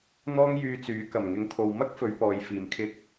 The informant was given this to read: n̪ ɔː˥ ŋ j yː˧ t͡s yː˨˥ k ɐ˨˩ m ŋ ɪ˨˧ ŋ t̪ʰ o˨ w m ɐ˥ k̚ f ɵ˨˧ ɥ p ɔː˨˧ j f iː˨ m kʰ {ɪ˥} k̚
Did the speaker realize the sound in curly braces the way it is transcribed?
no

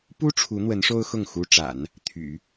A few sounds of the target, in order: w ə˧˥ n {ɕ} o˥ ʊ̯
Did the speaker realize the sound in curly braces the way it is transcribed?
no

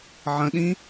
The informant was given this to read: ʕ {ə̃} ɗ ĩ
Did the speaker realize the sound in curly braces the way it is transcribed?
yes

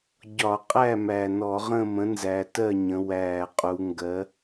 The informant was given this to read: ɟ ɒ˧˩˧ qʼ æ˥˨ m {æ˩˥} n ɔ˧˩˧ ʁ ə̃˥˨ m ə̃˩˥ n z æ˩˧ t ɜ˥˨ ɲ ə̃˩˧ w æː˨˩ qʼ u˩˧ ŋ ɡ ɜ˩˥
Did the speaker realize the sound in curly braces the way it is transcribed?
no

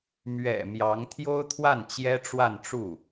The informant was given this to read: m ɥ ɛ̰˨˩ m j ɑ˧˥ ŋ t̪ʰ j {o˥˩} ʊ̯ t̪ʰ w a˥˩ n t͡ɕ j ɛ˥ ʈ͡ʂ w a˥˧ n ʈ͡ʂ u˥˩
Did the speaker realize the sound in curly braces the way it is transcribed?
no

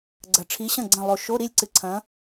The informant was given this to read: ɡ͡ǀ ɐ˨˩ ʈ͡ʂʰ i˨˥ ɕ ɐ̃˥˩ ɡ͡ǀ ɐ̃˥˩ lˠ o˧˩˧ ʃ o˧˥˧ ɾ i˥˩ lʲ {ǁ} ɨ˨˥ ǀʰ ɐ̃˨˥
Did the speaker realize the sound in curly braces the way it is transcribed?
no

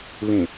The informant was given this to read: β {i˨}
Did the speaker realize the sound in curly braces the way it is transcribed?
no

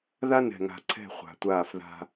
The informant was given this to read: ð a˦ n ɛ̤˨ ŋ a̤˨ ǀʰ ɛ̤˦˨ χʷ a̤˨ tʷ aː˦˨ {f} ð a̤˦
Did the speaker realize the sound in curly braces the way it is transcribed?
yes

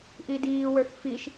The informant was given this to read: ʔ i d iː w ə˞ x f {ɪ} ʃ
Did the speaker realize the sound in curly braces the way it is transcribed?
no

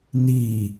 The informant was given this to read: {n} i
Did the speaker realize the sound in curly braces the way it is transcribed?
yes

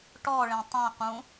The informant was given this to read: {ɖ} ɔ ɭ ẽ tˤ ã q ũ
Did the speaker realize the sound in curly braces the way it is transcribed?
no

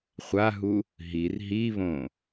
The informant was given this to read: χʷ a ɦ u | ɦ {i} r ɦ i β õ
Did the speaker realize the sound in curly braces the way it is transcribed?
yes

